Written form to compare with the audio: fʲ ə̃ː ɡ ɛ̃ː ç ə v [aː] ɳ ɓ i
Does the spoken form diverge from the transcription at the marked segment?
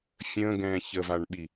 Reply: yes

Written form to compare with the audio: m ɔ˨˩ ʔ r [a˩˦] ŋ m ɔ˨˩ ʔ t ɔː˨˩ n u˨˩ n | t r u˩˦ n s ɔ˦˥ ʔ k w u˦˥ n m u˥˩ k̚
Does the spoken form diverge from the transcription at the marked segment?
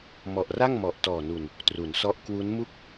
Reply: yes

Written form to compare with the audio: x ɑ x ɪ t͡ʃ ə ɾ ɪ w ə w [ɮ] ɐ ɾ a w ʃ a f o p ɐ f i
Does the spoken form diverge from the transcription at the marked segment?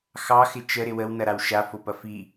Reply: yes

